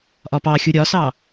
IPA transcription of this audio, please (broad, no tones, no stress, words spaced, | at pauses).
ʔɒpɑxʲu ɾʲɒsɑ